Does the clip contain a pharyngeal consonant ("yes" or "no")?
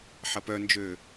yes